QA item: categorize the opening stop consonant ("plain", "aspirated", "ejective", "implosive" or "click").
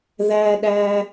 implosive